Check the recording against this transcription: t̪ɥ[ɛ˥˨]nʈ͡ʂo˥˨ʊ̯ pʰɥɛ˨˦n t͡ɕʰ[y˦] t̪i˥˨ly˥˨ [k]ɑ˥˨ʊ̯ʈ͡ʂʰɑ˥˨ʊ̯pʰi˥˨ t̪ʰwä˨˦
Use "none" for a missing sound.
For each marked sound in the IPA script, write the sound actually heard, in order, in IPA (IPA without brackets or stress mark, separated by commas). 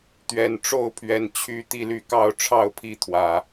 ɛ˨˩, y˦, k